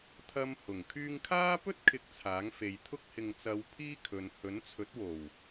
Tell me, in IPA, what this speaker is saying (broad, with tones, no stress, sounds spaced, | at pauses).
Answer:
t̪ʰ ɐ˧ m h ʊ˨˩ ŋ kʰ yː˧ ŋ kʰ aː˥ p ɵ˥ t̚ kʰ ɪ˨˥ k̚ t͡sʰ aː˨˥ ŋ f e˨ j t̪ʰ ʊ˥ k̚ h ɪ˨ ŋ t͡s ɐ˨˧ w pʰ iː˥ kʰ ɵ˨ n h ɵ˨˥ n t͡sʰ ɵ˨˥ t̚ w o˨˩ w